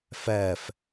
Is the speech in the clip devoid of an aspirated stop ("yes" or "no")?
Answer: yes